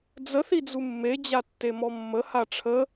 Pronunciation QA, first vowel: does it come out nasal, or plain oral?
oral